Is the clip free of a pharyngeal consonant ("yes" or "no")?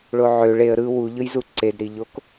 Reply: no